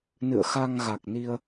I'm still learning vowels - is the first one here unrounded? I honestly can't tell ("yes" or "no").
yes